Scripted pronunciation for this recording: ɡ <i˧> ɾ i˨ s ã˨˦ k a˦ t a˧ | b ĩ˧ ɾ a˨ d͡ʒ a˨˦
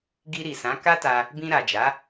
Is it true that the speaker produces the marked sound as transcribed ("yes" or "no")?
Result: yes